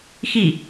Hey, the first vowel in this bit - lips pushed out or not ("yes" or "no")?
no